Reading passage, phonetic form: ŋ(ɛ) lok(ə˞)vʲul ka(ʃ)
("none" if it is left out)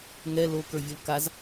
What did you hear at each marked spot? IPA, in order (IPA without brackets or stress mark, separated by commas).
ɛ, ə˞, z